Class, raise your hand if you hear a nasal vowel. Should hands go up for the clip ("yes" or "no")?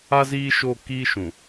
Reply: yes